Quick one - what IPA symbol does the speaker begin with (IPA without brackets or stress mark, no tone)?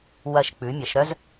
w